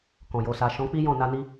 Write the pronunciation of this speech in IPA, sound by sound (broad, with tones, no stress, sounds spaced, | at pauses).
k ɔ̃˨ j o˨ s a˨ ʃ ɔ̃˨˦ k͡p i˦ j ɔ̃˦˨ n a˧ n i˧